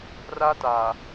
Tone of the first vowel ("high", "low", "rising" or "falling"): high